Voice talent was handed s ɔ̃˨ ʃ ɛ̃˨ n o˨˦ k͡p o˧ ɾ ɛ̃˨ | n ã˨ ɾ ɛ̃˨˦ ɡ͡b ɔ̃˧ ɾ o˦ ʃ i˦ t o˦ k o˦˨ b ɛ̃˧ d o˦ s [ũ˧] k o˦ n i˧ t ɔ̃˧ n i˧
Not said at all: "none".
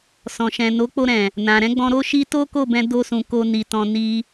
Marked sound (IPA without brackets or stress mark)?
ũ˧